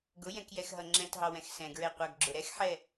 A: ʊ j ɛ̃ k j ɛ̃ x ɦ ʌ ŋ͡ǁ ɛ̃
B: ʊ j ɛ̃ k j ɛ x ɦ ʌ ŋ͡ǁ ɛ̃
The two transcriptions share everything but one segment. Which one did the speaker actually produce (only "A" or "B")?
B